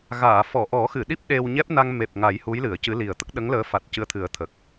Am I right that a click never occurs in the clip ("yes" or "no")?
yes